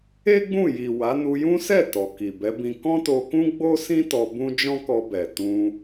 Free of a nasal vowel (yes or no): no